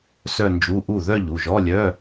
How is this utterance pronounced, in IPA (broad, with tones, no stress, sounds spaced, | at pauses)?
s œ˥˧ n d͡ʒ u˧˥˧ ʔ u˥˩ ð œ˥˧ ʎ u˩˧˩ ʒ ɔ˧˥˧ lʲ œ˧˥˧